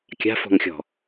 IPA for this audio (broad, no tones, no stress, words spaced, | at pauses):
kʲa̤fɔ̤ŋxʲɔ̤